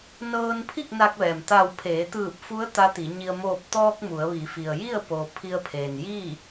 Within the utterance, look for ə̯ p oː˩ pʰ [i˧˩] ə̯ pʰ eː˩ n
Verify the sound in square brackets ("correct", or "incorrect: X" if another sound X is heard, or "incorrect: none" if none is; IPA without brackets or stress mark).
incorrect: i˧